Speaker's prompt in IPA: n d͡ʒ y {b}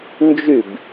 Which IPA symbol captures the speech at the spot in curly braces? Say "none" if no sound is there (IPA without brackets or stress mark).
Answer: b